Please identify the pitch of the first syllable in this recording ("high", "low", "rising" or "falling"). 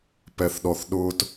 low